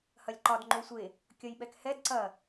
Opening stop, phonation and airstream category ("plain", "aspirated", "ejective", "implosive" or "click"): click